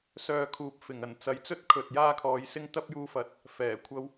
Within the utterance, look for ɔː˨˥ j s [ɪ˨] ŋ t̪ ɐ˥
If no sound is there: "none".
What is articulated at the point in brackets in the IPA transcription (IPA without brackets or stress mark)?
ɪ˥